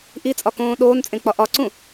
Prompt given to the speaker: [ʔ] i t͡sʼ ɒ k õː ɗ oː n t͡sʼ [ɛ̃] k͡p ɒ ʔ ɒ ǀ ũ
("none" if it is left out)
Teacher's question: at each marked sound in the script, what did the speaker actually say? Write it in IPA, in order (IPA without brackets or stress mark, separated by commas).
ʔ, ẽ